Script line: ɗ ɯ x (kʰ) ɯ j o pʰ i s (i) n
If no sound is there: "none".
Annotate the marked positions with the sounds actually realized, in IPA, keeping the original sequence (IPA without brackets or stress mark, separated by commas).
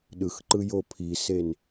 ǃ, e